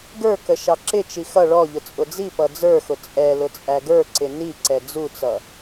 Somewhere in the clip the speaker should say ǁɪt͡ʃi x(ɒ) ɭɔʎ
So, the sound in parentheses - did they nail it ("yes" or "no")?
no